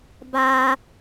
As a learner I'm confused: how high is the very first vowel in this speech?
low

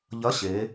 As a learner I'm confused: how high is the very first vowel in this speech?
low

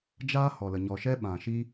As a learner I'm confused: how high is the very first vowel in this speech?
low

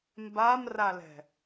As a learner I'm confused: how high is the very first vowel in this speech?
low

